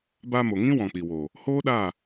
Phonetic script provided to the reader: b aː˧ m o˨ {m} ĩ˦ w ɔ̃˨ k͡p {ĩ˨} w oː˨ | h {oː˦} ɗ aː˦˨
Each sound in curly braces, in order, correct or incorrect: incorrect: ŋ, incorrect: i˨, correct

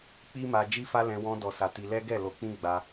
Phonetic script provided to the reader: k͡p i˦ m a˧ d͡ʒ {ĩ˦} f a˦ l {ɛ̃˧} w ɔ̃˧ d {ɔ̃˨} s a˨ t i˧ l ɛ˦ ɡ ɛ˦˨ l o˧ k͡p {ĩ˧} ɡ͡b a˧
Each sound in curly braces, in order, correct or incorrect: incorrect: i˦, correct, incorrect: ɔ˨, incorrect: ĩ˦

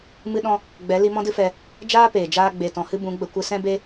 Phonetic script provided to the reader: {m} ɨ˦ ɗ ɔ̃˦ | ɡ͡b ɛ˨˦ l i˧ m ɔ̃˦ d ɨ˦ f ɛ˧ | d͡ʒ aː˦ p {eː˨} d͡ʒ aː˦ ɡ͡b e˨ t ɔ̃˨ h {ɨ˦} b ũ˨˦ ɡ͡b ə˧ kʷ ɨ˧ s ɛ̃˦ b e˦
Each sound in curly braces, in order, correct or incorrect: correct, correct, correct

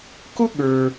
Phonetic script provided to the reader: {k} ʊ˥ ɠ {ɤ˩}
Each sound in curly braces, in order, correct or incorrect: correct, incorrect: ə˞˩

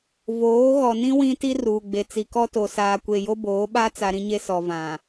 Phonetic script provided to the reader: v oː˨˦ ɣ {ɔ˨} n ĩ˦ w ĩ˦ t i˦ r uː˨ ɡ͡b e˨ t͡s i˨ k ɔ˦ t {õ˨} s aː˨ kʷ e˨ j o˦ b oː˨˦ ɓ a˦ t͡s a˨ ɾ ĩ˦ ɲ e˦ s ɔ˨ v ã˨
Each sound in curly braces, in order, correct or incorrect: correct, incorrect: o˨

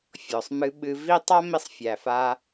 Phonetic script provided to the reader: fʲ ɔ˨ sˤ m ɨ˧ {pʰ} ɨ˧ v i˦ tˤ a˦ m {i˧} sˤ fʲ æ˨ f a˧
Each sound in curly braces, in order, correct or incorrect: incorrect: ɓ, correct

